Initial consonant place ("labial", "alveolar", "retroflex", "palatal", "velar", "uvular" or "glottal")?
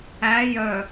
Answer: palatal